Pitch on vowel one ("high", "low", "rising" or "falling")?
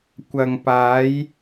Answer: low